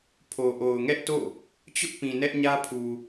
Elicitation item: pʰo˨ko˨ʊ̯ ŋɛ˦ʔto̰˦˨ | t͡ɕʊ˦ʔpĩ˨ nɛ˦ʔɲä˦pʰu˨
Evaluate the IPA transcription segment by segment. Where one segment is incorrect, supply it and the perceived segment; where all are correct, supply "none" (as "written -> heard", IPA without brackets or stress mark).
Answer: k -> ʔ